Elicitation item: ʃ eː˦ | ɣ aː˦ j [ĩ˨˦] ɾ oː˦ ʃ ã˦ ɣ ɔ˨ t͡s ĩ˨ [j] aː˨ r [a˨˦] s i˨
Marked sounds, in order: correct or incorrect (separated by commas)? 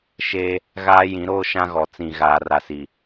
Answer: correct, incorrect, incorrect